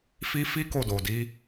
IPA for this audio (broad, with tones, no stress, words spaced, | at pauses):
fi˦ fi˦ ko˦˨do˨di˨˦